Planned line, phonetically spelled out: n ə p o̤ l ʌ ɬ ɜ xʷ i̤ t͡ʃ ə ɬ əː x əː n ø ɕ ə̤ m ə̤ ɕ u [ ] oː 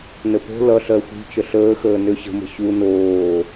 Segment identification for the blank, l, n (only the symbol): n